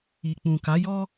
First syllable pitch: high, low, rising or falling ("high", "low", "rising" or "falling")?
low